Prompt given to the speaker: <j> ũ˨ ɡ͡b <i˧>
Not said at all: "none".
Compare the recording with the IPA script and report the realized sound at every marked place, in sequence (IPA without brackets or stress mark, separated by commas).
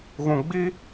ɣ, i˧